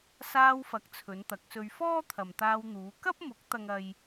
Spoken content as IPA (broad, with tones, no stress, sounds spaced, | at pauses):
s aː˧ w f ɐ˨˥ k̚ t͡sʰ ɵ˨˧ n t̪ ɐ˨˥ k̚ s ɵ˧ ɥ f ɔː˥ t̪ʰ ɐ˨ m t̪ aː˧ w n̪ uː˨˧ k ɐ˥ p̚ m ʊ˨˥ k̚ t̪ ɐ˥ ŋ ɐ˥ j